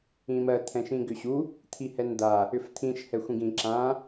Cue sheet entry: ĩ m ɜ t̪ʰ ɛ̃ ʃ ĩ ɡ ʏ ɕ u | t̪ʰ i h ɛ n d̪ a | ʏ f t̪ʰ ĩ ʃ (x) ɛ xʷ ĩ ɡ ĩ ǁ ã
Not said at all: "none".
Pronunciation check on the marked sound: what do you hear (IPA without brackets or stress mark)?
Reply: h